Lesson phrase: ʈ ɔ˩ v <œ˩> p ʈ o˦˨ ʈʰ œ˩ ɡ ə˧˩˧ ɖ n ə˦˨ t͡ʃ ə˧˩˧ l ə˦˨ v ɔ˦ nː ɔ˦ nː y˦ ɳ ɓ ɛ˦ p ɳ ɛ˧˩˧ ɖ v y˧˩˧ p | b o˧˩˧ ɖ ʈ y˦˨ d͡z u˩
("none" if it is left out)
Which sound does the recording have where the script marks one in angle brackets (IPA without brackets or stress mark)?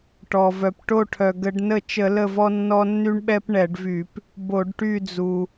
œ˩